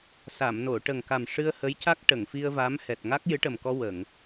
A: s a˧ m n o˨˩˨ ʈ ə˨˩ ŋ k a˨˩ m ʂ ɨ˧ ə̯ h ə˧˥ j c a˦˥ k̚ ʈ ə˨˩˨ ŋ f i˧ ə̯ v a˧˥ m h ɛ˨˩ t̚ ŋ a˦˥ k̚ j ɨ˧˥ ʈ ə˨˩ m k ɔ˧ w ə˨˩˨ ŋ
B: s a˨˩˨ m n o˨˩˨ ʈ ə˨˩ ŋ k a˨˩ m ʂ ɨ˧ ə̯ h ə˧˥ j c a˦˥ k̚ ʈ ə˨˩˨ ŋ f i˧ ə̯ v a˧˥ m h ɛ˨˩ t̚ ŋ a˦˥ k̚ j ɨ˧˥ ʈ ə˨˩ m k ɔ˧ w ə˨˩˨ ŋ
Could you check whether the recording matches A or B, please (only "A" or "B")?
B